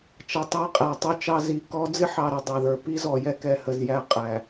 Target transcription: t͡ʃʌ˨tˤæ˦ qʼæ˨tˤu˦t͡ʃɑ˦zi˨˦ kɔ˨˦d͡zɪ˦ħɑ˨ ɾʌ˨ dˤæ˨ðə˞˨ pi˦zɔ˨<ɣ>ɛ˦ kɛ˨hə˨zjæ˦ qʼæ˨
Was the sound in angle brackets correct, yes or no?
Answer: no